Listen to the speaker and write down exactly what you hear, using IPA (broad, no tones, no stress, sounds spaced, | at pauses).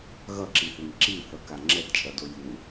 ɣ ʌ ǁ i θ e ŋ ǁ i θ ʌ k a ŋ͡ǁ ɛ d t͡ʃʼ ʌ d o j u